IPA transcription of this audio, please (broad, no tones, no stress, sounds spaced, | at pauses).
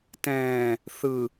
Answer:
t ɛ̃ː | θ ɯ